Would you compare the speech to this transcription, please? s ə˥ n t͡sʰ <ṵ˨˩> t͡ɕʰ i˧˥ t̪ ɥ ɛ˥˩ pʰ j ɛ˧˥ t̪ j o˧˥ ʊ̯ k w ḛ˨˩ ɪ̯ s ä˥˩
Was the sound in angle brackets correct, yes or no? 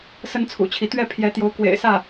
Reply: yes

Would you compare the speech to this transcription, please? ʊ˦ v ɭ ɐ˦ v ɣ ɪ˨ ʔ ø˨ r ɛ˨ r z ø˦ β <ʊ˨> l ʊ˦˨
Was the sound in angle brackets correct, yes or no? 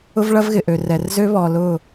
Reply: no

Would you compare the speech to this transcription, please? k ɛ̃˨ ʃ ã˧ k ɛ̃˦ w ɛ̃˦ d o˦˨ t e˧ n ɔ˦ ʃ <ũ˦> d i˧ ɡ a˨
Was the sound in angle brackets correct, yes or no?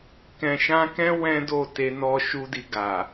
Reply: no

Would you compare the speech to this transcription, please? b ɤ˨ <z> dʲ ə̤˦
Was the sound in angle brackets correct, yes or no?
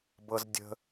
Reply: yes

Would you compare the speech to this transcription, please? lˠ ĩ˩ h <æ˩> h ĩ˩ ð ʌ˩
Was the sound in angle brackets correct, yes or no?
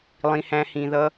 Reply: no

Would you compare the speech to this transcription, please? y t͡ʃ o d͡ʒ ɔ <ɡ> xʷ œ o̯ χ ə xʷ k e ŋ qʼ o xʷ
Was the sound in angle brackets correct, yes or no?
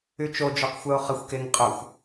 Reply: no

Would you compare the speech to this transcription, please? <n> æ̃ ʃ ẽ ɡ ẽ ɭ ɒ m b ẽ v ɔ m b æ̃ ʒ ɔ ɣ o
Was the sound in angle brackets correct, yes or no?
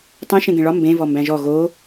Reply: no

